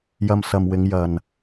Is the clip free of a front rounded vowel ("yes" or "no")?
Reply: yes